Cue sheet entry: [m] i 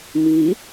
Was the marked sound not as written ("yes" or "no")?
no